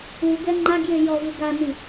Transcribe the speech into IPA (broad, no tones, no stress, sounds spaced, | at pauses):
u ɡ ɛ ŋ͡ǃ a ɡ j e j ɔ v ɯ ɡ a n i